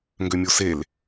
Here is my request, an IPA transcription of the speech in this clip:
ŋ ɡ ø mʲ o s e l

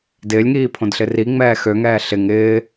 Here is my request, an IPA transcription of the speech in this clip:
d ɪː lʲ ŋ iː pʰ õ d ɬ ɪ r i ŋ͡m ɛː x ø ŋ ɛː ɬ ɪ ŋ ɪː

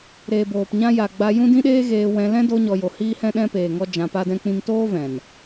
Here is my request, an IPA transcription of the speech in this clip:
ɾ eː˨ b oː˨ p ɲ ã˦ j a˨ ɡ͡b a˦ j ũ˦ d ĩ˦ ɗ eː˦ ɣ eː˧ w ɛ̃˧ l ɛ̃˦ d o˧ ɲ ɔ˨ j o˨ h iː˦ h ɛ̃˦ ɗ ɛ̃˦ p eː˨ ŋ ɔ˦ d͡ʒ ã˧ p a˦ d ɛ̃˦ k͡p ĩ˦ ŋ t oː˦ v ɛ̃˨ n

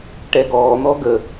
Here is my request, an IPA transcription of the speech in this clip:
ʈ ɛ ɡ ɔː n̪ ɔ ɡ ə

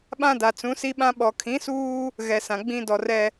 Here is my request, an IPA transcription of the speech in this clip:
ɓ ã˦ d a˨ t͡s ũ˨˦ s i˦ ɓ ã˦ ɓ ɔ˨ kʰ ĩ˨˦ s uː˦ | ɣ ɛ˨ s ã˨ ɡ͡b ĩ˦ d ɔ˨ r ɛ˦

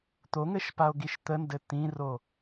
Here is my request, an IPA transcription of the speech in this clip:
t̪ o ŋ ɘ ʃ p a o̯ ɡ i ʃ t̪ ə n d ɘ t̪ ĩ r o

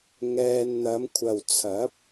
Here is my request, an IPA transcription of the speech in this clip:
ŋ ɛː˧ n n̪ ɐ˨˧ m kʷʰ ɐ˨ w t͡sʰ ɐ˨˥ p̚

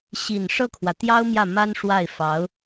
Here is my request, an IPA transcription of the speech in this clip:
ɕ i˨˩ n ʂ ɤ˥˩ kʰ w ä˩ t̪ j ɑ˥ ʊ̯ m j ä˥˩ m a˥ n ʂ w a˥˩ ɪ̯ f ɑ˧˥ ʊ̯

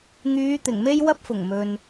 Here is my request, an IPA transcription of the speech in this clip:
ŋ yː˨˧ t̪ ɪ˨˩ ŋ m e˥ j w ɐ˥ p̚ f ʊ˨˩ ŋ m ɵ˨ n

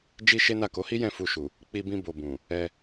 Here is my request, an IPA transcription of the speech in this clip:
d͡ʒ i˦ ʃ e˦ n a˦˨ k o˨˦ h i˦ j ɛ̃˦˨ f u˧ ʃ u˨ | k͡p i˧ b ĩ˧ b o˨ b ũ˨ | ɛ˧

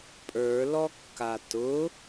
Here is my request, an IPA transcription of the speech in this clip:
pʼ ə˞ l ɔ kː a t ʊ

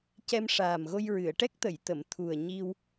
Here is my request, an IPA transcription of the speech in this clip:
c ɛ˧ m ʂ aː˨˩ m ɣ o˧ j ɹ ɨ˨˩˨ ə̯ ʈ ɛ˦˥ k̚ t̪ ə˨˩˨ j t̪ ə˨˩˨ m t̪ʰ u˨˩ ə̯ ɲ i˧ w

